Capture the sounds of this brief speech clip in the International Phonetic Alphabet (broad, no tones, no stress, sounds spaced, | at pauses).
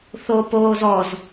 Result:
θ o p oː z ɔ z